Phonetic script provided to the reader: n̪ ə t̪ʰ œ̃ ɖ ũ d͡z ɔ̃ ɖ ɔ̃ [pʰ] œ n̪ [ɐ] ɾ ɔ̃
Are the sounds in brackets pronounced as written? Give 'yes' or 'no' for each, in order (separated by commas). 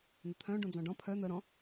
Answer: yes, no